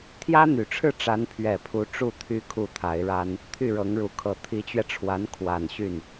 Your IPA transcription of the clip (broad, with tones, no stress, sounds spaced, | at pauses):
t̪ʰ j ä˥ n̪ y˨˩ ʈ͡ʂʰ ɻ̩˥˩ ʈ͡ʂ a˧˥ n pʰ ɥ ɛ˨˩ pʰ u˧˥ ʈ͡ʂ u˥˩ t̪ʰ y˥ kʰ u˥˩ t̪ʰ a˧˥ ɪ̯ ɻ a˥ n | t̪ʰ y˥˩ ɻ ɤ˧˥ ŋ ɻ u˨˩ kʰ ɤ˧˥ t̪ʰ i˧˥ t͡ɕ ɥ ɛ˧ ʈ͡ʂʰ w a˧˥ n kʰ w a˨˩ n ɕ y˥˩ n